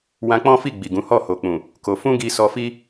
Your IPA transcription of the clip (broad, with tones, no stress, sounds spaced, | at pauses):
w ã˧ k͡p ɔ̃˦ f i˦˨ ɡ͡b i˨ ɡ ũ˨˦ h ɔ˦˨ h o˨ k͡p ũ˨ | k o˧ f ũ˦ ɡ i˧ s ɔ˧ f i˦